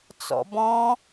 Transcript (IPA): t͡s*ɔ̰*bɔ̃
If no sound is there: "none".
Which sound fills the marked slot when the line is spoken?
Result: ɔ̰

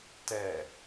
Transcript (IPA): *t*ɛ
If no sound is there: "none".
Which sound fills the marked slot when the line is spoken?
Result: t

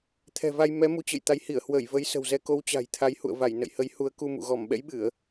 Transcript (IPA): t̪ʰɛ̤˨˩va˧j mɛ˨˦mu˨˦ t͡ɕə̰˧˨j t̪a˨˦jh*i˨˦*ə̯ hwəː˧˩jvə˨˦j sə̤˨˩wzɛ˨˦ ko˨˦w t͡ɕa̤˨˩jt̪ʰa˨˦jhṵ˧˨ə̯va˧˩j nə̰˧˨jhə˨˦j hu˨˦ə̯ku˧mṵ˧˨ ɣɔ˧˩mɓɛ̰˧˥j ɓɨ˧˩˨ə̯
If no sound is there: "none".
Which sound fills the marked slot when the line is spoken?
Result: i˧˩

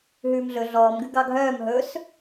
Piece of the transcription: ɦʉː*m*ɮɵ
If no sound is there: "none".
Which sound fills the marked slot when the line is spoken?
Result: m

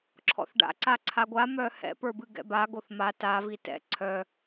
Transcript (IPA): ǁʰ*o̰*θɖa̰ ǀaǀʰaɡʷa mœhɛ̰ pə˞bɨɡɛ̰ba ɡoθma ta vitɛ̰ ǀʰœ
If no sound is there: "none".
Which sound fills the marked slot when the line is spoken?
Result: ɔ̰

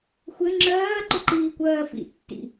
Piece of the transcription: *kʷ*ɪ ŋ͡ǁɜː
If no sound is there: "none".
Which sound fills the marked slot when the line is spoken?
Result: xʷ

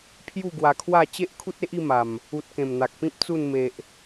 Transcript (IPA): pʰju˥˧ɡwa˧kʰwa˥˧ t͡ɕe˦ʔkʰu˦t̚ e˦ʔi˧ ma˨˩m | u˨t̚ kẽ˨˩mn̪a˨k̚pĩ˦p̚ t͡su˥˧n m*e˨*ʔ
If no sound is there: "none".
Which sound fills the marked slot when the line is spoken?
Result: e˨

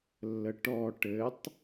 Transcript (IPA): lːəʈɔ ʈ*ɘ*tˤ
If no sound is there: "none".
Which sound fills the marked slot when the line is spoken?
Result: ɘ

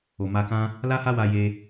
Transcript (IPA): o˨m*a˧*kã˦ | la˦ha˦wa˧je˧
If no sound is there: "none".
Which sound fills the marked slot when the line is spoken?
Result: a˧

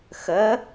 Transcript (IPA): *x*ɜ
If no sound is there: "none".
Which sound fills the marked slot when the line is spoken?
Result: x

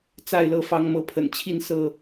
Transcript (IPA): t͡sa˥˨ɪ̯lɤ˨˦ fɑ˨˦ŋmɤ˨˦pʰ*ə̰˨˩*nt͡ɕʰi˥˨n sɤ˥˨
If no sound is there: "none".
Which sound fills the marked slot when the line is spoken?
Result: ə̰˨˩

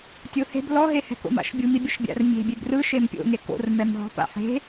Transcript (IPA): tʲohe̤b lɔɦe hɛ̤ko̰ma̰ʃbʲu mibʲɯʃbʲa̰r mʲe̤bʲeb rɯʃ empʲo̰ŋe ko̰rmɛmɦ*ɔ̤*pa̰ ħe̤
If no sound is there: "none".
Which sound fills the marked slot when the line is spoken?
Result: ɔ̤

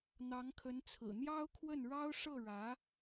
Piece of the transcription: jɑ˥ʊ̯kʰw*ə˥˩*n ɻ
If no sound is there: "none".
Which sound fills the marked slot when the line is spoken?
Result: ə˥˩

